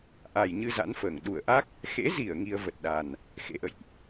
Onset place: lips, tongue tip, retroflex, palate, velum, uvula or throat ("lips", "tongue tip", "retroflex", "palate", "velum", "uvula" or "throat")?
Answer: throat